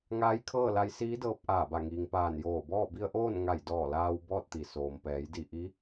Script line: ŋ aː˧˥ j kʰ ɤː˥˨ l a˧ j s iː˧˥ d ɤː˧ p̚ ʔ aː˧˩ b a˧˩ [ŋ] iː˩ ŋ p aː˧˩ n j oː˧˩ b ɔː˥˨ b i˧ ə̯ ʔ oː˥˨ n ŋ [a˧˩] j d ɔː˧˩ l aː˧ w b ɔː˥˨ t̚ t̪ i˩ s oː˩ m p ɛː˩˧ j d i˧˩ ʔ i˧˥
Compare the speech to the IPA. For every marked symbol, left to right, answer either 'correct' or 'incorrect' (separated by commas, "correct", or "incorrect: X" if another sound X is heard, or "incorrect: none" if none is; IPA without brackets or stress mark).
correct, correct